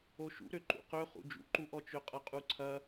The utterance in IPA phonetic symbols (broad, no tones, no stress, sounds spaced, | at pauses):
o ʃ ṵ ɾ ø ǃ ṵ q ø χ ṵ d͡ʒ ṵ ǃ u ʔ ɔ t͡ʃ ø qʼ ɐ qʼ u ǀʰ ɐ